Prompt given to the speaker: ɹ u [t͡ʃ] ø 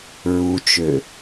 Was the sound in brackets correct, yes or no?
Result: yes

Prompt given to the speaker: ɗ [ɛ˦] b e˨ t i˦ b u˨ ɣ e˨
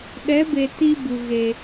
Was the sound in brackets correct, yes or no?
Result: no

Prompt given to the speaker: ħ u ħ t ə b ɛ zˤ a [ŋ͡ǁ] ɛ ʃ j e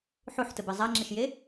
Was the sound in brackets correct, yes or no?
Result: yes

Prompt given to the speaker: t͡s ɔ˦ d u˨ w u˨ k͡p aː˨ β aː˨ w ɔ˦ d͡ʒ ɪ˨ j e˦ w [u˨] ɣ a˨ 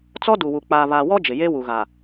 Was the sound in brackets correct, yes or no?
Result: yes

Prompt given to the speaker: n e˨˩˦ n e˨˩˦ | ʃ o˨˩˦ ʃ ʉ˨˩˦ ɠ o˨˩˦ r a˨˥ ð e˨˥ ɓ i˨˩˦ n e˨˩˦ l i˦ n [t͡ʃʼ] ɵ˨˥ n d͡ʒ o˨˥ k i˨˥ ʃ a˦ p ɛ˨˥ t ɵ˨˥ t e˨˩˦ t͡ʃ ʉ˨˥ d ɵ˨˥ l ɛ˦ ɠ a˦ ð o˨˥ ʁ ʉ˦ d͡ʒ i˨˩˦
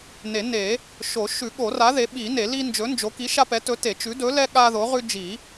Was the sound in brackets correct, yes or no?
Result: no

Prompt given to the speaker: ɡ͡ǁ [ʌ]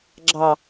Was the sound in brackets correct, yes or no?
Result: no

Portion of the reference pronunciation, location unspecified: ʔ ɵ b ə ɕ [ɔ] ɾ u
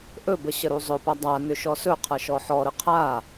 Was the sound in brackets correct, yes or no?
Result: no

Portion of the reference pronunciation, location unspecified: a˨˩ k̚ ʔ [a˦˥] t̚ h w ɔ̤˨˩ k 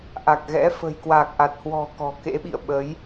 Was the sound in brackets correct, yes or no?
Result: no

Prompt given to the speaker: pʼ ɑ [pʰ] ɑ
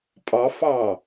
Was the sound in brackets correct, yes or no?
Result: no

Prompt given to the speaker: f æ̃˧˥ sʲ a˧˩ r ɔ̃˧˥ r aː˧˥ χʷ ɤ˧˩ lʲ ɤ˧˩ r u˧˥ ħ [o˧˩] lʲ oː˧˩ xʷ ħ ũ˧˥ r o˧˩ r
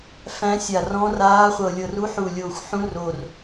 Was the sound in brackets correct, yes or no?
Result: no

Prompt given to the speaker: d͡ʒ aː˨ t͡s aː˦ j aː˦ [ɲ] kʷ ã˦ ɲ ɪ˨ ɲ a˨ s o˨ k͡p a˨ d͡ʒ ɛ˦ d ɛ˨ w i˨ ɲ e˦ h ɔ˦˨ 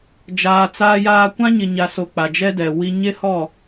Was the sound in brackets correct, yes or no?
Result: no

